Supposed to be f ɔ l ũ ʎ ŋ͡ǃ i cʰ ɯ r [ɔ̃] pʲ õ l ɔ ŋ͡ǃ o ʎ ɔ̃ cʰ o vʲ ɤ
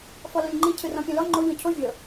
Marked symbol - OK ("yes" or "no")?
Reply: yes